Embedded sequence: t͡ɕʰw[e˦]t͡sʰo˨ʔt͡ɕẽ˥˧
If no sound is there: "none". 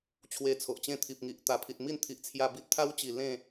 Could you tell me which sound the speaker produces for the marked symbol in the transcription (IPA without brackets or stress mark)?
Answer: e˧